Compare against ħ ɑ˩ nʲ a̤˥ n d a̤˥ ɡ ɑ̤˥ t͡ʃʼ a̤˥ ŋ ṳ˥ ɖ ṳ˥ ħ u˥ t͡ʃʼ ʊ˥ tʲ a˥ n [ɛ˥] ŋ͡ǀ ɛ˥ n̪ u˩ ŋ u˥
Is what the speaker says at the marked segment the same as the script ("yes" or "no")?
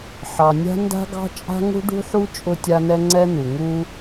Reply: yes